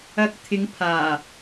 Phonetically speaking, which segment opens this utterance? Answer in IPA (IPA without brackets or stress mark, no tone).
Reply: ɐ